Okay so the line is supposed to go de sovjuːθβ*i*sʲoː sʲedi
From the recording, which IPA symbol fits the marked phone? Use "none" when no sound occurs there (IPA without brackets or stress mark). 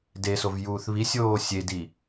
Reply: i